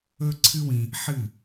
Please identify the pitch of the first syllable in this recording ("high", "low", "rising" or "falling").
high